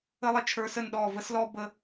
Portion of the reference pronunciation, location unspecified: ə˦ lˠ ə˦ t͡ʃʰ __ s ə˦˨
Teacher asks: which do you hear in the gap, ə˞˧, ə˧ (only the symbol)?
ə˞˧